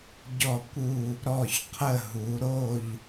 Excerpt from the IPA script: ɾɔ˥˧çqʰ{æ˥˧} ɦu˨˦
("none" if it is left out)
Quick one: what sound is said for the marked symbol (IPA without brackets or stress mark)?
ə˥˧